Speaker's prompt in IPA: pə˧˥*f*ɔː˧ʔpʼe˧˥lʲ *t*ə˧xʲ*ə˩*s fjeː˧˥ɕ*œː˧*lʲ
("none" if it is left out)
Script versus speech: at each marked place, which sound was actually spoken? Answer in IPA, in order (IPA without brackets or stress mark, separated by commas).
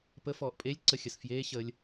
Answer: f, ǀ, ə˩, əː˧